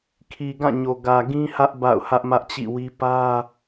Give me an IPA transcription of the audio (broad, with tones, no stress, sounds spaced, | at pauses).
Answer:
kʰ i˨ ɡ ã˦˨ ɲ o˨ ɡ ä˨ ɡ ĩ˦ h ä˦ ʔ b a̰˦˨ ʊ̯ h ä˦ ʔ m ä˦ ʔ t͡ɕ ḭ˦˨ w i˦ p ä˦